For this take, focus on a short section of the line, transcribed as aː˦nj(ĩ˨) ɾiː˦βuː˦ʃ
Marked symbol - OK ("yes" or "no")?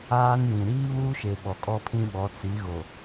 yes